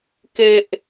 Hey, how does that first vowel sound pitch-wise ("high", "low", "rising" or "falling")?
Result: high